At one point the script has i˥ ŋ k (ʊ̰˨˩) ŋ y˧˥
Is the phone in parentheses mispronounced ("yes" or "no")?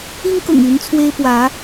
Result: no